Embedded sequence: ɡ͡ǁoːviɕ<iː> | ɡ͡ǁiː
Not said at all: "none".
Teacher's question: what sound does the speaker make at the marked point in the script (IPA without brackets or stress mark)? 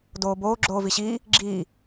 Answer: iː